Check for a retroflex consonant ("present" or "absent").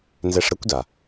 present